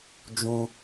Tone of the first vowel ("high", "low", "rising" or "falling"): high